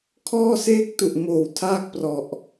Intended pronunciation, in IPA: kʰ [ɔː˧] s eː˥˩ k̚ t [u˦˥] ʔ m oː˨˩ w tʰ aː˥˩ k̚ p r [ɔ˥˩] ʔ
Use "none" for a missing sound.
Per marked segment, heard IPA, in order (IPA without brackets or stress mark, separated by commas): ɔː˥˩, u˨˩, ɔ˨˩